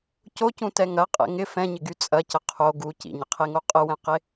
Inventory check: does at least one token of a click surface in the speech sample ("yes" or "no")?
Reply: no